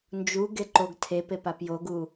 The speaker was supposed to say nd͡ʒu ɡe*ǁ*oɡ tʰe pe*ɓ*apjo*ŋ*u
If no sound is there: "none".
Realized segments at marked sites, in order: ǃ, p, ɡ

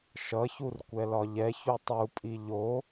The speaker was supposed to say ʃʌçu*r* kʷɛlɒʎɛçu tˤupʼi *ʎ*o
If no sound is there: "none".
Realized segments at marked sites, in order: r, ʎ

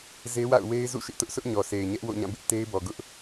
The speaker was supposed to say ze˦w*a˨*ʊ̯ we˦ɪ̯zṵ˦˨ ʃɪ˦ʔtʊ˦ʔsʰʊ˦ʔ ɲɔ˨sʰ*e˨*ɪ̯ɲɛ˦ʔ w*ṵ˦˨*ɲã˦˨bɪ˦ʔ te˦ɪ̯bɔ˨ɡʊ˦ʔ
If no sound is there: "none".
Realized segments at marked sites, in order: a̰˦˨, e˨, o̰˦˨

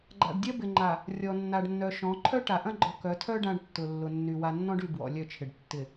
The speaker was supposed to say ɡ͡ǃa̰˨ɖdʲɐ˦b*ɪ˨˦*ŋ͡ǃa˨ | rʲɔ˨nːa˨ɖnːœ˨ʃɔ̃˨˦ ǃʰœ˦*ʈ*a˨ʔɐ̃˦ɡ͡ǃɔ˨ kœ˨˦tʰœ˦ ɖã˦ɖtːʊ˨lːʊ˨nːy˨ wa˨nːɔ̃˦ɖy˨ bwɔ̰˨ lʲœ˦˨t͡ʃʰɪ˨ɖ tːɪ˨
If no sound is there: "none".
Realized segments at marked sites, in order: ɪ˨, ʈ

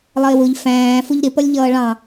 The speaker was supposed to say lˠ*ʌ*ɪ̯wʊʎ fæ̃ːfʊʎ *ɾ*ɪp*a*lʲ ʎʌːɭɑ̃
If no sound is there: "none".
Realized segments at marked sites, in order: ʌ, ɾ, ʌ

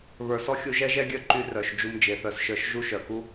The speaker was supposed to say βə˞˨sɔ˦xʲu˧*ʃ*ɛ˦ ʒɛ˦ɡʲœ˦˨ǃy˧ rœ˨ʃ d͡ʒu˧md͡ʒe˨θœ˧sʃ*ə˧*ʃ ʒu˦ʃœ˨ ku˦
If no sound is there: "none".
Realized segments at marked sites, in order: ʒ, ə˞˧

